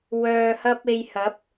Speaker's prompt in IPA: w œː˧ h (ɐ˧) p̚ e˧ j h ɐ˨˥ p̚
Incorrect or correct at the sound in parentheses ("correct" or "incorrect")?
incorrect